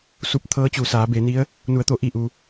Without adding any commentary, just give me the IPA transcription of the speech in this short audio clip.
s u˧ p̚ t̪ʰ ɤː˧˥ t͡ɕ u˩ s aː˩˧ b e˩˧ n i˧˥ ə̯ | n u˩˧ ə̯ t̪ o˩˧ ʔ i˧˩ ʔ u˩

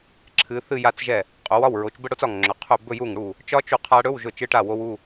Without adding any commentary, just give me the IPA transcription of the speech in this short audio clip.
ǁʰ ɨ˩˧ θ ɨ˥˧ j a˦˥ t͡s ʒ ɛ˥˩ | qʼ o˩˧ w ɒ˥˩ w ɹ o˩˧ t͡ʃ b ə˥˧ ɽ o˦˥ t͡s ɒ˧˩ ŋ ŋ͡ǁ ɵ˩˧ qʰ ɵ˥˩ b ɵ˥˧ j u˥˩ ŋ ɽ u˥˩ | t͡ʃ ɒ˦˥ t͡ʃ u˧˩ qʰ a˦˥ ɽ ɵ˧˥˧ w ʒ ɵ˧˩ t͡ʃ ɨ˧˥˧ ʈ a˥˩ w o˦˥ w u˧˥˧

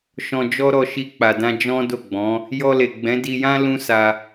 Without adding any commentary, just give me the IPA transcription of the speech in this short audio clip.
ʃ ɔ̃˨ d͡ʒ ɔ˧ ɾ ɔ˨ ʃ i˧ k͡p a˨ d ã˧ d͡ʒ ɔ̃˦ d o˦˨ ɡ͡b ɔ̃˨˦ | j ɔ˧ l e˨ ɡ͡b ɛ̃˨˦ d i˧ j ã˦ l ũ˦ s a˧

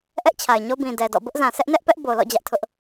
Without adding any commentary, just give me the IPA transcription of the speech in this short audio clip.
ʔ ɛ˦ ʔ t͡ɕʰ a˨ ɪ̯ ɲ o˦ b ĩ˨ d ɛ˨ d ɔ̰˦˨ b ʊ˦ ʔ z ã˨ sʰ ɛ˦ ʔ n ɛ˦ ʔ p ɛ˦ ʔ b o˨ l ɔ̰˦˨ d͡ʑ ä˦ ʔ tʰ ʊ˦ ʔ

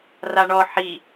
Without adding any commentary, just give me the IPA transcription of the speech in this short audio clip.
r a ɳ ɔ ħ i

